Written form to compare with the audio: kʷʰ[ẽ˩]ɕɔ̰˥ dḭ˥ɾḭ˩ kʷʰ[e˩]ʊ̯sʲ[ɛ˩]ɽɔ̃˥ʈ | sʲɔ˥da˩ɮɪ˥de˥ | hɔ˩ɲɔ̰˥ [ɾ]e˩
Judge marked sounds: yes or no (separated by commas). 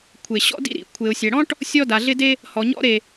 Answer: no, yes, yes, yes